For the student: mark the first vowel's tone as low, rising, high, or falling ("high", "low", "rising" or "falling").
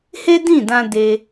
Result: high